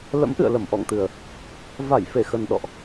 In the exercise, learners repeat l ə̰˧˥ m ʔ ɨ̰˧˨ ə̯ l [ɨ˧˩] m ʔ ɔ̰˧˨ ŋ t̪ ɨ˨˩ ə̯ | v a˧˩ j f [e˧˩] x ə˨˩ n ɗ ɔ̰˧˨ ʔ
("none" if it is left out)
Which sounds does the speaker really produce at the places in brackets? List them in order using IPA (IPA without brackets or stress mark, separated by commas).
ə˧˩, e˧˩